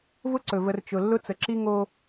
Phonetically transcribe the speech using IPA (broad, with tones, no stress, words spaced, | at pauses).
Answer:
vʊ˥ǀɵ˩və˨r t͡ʃʊ˩ lːʊ˥t͡sə˩ǁi˥ ŋo˦